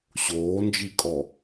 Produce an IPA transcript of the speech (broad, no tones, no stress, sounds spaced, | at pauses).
ɕ oː n d͡ʒ i kʼ ɔ